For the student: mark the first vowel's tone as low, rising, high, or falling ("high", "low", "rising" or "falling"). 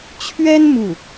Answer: high